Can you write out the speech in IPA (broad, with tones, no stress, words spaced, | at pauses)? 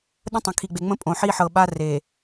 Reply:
ɗə̃˦tˤə̃˨kʰi˨ɡ͡be˨ ŋ͡mə̃˦pʼõ˨ ħi˦ħɤ˨ ɓa˦re˨